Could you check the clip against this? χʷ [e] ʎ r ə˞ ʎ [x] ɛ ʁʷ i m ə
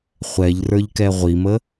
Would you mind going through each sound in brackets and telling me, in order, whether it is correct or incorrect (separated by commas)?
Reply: incorrect, incorrect